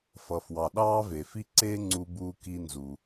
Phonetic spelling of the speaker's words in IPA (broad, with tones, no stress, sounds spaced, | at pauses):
f ʌ˩ f w ɑ˩ ɗ ɑː˥ v e˩ f i˥ ǀ e˥ ŋ͡ǀ u˥ b uː˥ k i˥ n z u˩